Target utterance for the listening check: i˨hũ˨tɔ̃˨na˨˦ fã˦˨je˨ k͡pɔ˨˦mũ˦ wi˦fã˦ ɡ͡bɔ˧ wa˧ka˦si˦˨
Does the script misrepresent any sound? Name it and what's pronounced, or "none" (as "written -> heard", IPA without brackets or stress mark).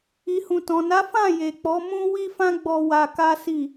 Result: none